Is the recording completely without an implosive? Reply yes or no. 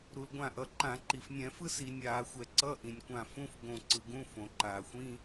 yes